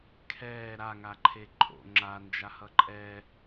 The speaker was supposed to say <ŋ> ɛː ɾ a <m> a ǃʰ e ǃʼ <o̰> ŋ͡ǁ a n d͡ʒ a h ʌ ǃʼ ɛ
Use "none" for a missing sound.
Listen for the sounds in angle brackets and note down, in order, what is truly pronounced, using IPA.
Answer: kʰ, ŋ, o̰

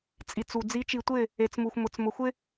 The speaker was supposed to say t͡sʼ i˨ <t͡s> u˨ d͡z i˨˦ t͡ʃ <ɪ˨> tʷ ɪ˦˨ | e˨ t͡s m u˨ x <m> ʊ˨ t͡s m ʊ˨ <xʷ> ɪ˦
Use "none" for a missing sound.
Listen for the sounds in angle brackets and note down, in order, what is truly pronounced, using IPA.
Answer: t͡s, i˨, m, xʷ

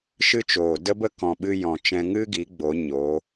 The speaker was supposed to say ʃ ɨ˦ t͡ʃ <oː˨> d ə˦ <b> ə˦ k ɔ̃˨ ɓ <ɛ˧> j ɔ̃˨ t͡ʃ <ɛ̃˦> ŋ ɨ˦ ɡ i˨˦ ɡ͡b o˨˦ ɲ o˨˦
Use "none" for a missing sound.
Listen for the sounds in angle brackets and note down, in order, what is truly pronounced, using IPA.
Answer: oː˨, b, ɨ˧, ɛ̃˧

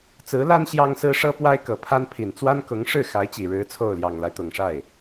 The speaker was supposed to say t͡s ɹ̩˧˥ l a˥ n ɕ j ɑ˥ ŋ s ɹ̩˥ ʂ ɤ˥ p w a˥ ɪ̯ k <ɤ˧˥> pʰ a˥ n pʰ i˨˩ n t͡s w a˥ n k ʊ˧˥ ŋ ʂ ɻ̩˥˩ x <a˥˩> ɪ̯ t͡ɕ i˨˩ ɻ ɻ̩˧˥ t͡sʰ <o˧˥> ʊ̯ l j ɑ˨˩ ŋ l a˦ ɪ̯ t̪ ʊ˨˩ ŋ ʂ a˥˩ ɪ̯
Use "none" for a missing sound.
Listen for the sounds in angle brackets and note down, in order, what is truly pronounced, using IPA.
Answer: ɤ˨˩, a˧˥, o˥˩

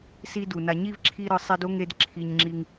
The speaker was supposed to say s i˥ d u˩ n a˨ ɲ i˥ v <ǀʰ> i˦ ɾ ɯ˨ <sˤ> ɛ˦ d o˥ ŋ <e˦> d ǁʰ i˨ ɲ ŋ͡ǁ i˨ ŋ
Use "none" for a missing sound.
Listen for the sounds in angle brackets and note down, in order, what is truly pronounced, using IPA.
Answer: ǁʰ, sˤ, e˦

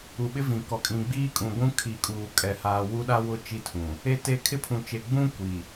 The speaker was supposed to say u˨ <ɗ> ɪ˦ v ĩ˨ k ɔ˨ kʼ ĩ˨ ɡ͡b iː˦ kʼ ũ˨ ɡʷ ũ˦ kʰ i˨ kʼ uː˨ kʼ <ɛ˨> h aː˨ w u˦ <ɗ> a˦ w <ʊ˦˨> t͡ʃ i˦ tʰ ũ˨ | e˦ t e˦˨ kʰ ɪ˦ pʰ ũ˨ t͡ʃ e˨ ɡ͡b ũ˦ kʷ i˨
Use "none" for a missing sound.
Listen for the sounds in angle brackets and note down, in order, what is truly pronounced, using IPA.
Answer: ɓ, ɛ˨, ɗ, ʊ˦˨

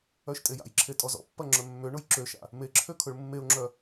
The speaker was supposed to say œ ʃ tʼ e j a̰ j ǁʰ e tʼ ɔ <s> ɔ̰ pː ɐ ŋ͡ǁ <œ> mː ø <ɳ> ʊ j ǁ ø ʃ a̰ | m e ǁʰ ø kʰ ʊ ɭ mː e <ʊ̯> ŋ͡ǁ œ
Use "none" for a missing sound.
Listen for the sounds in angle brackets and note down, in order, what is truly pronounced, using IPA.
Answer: z, œ, ɳ, ʊ̯

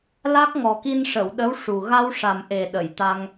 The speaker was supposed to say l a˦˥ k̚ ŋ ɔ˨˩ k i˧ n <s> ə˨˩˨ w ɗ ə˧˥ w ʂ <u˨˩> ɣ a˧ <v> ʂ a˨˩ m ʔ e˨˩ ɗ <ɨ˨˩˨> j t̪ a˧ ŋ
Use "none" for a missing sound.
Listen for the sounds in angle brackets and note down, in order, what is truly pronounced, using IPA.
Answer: ʂ, u˨˩, w, ə˨˩˨

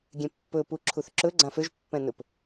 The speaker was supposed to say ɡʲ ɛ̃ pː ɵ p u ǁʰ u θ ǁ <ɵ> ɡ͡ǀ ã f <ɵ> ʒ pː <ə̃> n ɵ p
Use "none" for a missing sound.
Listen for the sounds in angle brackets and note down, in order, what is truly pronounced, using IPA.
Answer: ɵ, ø, ɛ̃

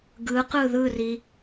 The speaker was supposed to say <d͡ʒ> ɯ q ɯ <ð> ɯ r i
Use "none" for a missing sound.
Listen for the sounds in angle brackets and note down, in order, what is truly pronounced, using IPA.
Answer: ɡ, ð

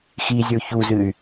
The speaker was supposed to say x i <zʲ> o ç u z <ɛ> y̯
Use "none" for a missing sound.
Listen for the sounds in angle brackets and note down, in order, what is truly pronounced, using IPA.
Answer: zʲ, ɨ

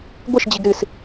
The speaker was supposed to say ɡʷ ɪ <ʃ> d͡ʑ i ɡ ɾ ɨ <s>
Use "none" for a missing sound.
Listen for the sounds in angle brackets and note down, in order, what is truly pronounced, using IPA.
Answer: ʃ, s

